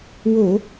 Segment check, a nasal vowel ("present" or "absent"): absent